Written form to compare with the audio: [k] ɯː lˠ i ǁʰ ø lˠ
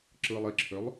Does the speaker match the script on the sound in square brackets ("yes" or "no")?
no